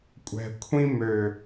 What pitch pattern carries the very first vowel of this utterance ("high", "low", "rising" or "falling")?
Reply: low